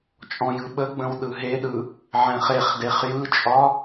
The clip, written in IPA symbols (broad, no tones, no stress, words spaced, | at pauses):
t͡ʃʼɔ̃jɯɓəɡ͡bə̃w ɗɯɦeɗɯ | ʕɛ̃χeχdeχ jɯt͡ʃʼɒ